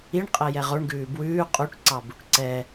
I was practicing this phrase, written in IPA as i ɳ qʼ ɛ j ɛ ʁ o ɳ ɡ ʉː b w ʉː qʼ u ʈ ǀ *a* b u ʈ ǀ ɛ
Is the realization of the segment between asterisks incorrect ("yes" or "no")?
yes